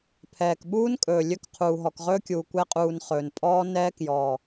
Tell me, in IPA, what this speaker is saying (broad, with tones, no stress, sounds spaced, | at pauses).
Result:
pʰ ɛː˨ k ɓ uː˦ n kʼ ɵː˨ lʲ ɵ˦ k qʰ uː˨ ɦ ɔ˨ k ʁ ɵː˦ kʲ uː˨ kʷ ɛ˦ qʼ uː˨ n χ ɵː˨ n pʼ ɔː˦ n ɛː˦ k j ɔː˨